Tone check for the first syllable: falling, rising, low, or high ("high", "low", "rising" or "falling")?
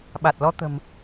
low